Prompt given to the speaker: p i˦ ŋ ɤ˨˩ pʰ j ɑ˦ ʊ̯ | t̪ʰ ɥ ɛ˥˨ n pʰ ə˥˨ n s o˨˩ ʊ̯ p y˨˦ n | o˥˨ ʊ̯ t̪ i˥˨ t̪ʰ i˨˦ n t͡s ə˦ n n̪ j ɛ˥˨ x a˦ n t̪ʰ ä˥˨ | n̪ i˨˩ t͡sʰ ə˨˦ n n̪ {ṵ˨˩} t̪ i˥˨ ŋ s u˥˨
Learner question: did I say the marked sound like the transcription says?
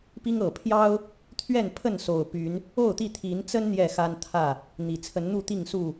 no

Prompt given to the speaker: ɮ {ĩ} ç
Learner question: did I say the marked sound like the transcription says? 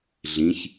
yes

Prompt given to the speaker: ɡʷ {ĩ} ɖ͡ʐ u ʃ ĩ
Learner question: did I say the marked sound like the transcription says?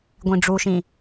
yes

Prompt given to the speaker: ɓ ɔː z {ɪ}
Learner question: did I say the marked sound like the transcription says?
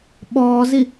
no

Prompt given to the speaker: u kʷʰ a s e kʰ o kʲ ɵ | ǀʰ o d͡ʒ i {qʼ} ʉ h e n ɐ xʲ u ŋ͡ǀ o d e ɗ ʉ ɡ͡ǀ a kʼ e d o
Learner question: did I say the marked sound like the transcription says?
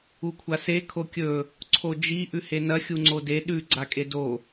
no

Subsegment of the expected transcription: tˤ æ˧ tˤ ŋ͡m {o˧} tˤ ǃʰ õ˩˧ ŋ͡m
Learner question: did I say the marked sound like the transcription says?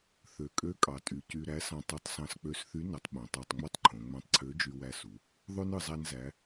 no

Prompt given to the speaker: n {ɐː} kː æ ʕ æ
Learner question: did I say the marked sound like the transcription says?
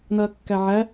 yes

